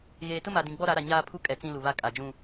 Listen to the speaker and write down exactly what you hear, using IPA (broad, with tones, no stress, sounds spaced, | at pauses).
ɣ eː˨ t ʊ˦ m a˨ d ĩ˨ ɡ͡b ɔ˦ ɾ a˨˦ ɾ a˨ ɲ aː˦ pʰ u˦ kʼ ɛ˨ t͡s ĩ˦ l u˨ β a˦ kʼ a˨ d͡ʒ ũ˦